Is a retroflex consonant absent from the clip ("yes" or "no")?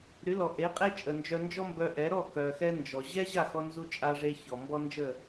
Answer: no